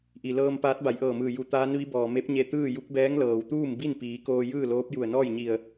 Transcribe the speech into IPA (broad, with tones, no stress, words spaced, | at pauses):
ʔi˩lɤː˧m paː˧˥t̚ba˩˧jʔɤː˧˩mɯː˧˩ ju˧˩t̪aː˧˥nʋi˧˥bɔː˩ me˧˥p̚ɲe˧ t̪ɯː˥˨ju˧˥k̚bɛː˧˥ŋ lɤː˩wt̪uː˥˨m bi˥˨npiː˩˧ koː˧jɯː˥˨loː˧˥p̚ ju˧˩ə̯nɔː˥˨jɲi˧˩ə̯